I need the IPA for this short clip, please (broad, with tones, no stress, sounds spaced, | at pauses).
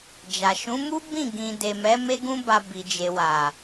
d͡ʒ a˨ ʃ ũ˨˦ m u˦ b ĩ˦˨ ɡ ĩ˨ d e˨ m ɛ˨˦ m e˦ ɡ ũ˦ b a˧ b i˨ d͡ʒ e˨ w a˨